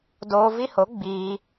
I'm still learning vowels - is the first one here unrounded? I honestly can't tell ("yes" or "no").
no